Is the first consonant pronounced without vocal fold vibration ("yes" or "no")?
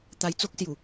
yes